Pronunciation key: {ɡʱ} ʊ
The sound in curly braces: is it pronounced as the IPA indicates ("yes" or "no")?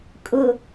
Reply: no